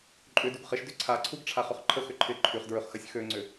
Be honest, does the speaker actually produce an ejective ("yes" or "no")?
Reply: yes